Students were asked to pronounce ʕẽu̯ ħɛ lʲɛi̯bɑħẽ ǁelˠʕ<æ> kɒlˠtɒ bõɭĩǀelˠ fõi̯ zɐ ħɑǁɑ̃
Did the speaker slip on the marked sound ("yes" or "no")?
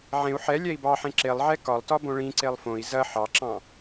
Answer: yes